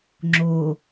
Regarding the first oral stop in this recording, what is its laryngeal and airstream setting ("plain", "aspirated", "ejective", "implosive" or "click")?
click